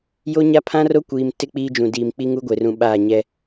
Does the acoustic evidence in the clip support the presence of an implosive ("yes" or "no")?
yes